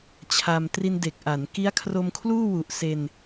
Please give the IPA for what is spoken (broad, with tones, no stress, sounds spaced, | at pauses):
t͡ɕʰ a˧ m t r i˧ n d e˨˩ k̚ ʔ a˩˦ n k i˦˥ a̯ kʰ r o˧ m kʰ l uː˥˩ w u˨˩ ʔ s e˧ n